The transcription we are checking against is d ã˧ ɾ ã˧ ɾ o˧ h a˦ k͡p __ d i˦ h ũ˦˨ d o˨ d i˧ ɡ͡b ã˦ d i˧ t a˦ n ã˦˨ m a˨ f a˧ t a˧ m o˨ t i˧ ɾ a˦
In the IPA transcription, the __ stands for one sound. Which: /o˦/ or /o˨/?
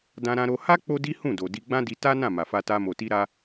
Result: o˦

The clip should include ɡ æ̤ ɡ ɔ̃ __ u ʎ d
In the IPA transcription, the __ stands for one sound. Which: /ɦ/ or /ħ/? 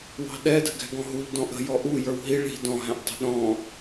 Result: ɦ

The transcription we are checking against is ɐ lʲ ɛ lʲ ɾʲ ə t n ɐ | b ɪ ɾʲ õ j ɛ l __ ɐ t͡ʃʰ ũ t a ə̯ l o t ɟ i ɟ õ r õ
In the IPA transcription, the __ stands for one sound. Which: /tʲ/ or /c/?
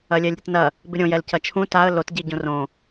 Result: c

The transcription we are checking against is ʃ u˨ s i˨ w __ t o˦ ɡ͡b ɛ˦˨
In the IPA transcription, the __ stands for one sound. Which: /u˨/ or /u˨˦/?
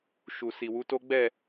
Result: u˨˦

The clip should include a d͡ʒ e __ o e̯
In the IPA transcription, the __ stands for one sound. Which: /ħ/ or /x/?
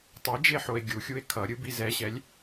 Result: ħ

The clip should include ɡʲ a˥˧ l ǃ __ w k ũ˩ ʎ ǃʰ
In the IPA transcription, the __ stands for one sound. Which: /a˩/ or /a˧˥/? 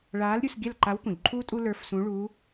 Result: a˧˥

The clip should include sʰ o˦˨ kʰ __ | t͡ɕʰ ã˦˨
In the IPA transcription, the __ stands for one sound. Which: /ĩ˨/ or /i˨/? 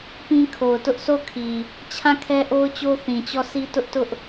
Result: i˨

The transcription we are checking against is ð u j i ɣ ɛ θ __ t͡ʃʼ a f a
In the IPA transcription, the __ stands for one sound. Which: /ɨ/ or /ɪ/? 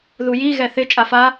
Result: ɪ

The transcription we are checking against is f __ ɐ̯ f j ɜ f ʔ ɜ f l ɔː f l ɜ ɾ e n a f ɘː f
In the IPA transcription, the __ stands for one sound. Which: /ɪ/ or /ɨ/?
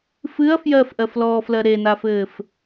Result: ɨ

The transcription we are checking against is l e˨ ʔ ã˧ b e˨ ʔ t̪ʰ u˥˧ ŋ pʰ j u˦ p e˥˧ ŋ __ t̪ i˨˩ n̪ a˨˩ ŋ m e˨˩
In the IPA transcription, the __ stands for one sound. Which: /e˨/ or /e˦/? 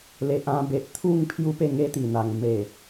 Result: e˦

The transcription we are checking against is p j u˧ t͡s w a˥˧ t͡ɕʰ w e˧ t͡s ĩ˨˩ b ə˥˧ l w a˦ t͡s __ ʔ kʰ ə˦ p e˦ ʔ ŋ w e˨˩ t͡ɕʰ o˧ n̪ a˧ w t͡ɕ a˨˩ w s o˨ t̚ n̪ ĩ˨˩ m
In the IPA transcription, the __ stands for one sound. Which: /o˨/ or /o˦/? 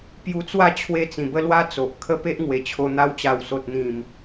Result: o˨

